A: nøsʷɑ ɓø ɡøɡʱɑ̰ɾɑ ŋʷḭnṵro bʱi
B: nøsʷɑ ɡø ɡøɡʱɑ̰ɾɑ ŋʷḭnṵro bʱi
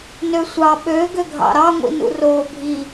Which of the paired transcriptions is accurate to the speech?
A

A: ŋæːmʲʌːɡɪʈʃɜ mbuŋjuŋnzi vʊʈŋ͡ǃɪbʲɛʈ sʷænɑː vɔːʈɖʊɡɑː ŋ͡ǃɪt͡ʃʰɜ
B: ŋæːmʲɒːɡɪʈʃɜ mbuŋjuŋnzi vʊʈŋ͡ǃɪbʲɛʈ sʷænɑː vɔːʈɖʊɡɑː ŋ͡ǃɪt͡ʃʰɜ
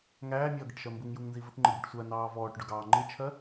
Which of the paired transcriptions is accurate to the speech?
A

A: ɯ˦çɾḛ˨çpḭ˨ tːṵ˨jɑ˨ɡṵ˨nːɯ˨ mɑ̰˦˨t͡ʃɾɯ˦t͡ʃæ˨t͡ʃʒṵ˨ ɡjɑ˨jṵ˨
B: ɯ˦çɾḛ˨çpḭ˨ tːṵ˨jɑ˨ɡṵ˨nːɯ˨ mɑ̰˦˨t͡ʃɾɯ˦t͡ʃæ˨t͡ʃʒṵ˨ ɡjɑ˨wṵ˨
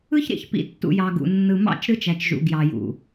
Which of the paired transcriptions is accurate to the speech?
A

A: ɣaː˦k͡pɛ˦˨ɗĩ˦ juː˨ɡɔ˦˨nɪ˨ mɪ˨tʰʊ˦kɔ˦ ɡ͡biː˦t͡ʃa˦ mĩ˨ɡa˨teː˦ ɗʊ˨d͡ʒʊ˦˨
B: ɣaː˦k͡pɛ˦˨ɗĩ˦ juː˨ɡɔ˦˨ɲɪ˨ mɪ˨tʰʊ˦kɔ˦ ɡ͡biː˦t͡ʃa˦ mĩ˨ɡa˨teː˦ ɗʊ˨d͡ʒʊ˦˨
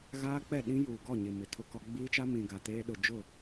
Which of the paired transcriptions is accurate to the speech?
B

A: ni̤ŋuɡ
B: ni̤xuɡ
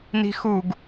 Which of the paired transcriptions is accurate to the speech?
B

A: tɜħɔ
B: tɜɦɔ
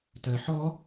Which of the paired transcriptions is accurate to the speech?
A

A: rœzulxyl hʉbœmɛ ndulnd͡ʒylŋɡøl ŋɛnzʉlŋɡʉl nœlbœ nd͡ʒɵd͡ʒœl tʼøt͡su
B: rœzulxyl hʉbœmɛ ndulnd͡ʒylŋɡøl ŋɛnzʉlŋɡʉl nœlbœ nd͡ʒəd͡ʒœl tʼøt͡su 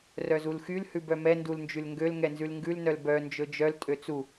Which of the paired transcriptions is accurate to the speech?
A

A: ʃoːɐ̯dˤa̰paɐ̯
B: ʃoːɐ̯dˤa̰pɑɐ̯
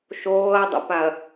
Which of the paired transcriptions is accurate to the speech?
A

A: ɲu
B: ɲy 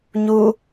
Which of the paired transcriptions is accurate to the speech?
A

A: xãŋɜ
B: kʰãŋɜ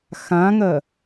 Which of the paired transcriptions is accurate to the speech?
A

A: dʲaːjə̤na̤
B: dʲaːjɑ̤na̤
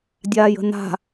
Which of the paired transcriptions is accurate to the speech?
A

